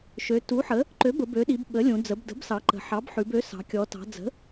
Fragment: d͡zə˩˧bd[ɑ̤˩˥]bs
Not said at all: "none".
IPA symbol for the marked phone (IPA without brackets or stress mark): ə̤˩˥